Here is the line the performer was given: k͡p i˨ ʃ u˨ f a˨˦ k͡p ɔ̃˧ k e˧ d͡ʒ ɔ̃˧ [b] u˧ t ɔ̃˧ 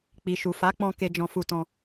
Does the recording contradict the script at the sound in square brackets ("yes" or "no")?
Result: yes